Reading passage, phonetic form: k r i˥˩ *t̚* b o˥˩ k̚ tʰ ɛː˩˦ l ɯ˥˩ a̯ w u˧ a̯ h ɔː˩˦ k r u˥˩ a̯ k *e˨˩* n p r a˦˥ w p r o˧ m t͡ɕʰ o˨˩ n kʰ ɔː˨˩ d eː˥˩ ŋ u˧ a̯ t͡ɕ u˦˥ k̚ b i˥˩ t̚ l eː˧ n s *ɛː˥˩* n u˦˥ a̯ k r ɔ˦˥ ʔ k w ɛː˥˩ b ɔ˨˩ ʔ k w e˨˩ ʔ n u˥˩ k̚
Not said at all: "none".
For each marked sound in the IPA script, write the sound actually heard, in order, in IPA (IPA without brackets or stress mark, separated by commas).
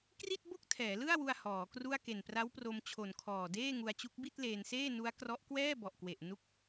t̚, e˨˩, eː˥˩